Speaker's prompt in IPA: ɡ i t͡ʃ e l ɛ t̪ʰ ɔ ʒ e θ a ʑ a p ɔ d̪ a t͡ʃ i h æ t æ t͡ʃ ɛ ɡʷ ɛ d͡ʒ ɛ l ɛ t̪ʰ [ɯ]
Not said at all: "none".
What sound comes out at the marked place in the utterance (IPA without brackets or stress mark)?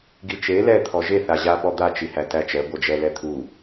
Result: u